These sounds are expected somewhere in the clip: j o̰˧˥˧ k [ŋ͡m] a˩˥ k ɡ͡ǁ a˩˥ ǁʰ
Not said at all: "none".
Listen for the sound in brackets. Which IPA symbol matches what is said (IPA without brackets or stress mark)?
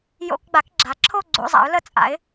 ɡ͡b